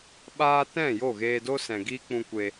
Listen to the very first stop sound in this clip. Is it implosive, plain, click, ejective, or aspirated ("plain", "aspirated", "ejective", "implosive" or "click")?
implosive